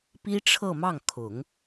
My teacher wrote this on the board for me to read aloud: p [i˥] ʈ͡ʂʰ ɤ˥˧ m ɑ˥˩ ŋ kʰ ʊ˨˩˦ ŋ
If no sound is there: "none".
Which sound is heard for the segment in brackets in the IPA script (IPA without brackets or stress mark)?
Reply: i˥